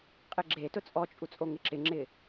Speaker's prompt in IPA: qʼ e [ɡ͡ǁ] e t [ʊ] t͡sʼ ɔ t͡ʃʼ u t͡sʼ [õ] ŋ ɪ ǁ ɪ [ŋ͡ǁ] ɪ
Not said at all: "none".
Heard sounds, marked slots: ɡ͡ǁ, ʊ, o, ŋ͡ǁ

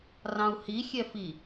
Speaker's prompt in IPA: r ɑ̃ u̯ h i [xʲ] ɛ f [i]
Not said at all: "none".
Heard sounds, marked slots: xʲ, i

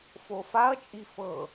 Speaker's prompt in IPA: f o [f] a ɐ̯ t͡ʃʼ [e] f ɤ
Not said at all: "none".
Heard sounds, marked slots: f, i

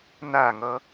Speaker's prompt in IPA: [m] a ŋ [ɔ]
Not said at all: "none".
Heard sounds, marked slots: n, ʌ

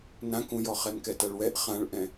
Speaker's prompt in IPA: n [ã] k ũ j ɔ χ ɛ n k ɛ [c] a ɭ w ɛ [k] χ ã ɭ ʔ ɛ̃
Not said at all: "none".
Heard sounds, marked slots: ã, t, ʔ

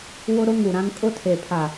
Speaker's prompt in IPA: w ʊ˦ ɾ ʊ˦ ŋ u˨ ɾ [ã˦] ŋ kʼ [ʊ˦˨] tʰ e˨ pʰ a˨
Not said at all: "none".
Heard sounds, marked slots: ã˦, ʊ˦

